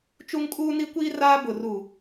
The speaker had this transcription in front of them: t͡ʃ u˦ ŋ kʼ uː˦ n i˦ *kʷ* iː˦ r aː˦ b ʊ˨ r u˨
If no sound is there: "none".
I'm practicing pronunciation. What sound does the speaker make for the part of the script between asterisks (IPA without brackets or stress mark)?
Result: kʷ